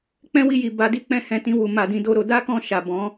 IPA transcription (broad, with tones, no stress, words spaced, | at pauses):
k͡pɛ̃˦wi˦˨ji˨ba˨˦ di˦k͡pɛ̃˦˨hɛ̃˨˦ tĩ˧wu˨ ma˨dĩ˧ do˦ɾo˧ da˦kɔ̃˧ʃa˨ bɔ̃˨˦